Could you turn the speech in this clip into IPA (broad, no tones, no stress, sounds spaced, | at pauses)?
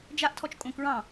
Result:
d͡ʒ a ʔ tʰ ɔ t͡ʃ kʼ õ k ɹ ɑ̃